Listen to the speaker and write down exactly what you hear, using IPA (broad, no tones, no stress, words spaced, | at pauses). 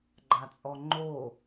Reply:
ɡ͡ǃat͡sʼɔŋ͡ǃo